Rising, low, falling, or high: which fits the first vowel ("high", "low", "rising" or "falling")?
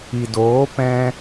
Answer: low